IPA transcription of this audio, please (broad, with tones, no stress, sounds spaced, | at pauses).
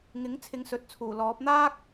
ŋ ɪ˨˥ ŋ t͡sʰ ɪ˨˧ ŋ s ɵ˨˥ t̚ t͡sʰ uː˨˩ l ɔː˨˥ p̚ n̪ aː˥ k̚